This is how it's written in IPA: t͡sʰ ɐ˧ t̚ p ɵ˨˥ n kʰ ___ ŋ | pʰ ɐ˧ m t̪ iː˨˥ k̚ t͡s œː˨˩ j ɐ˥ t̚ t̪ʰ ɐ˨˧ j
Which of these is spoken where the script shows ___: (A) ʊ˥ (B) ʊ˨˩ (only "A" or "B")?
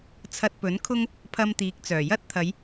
A